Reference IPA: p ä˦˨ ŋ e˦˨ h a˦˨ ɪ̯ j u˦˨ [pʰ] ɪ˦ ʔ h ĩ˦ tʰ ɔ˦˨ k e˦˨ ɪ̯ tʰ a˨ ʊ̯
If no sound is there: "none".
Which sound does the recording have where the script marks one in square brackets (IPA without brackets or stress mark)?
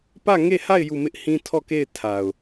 m